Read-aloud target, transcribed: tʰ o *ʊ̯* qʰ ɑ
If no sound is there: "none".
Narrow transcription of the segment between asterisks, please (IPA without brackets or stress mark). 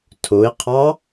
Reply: ɪ̯